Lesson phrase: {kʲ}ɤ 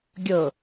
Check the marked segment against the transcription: incorrect: ɡʲ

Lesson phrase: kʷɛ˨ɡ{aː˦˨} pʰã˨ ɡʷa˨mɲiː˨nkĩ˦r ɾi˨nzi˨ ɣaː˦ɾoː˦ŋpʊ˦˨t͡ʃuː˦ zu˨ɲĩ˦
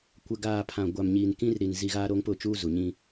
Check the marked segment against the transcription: incorrect: aː˨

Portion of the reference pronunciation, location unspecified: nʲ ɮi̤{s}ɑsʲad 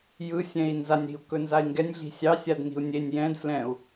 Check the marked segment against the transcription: incorrect: sʲ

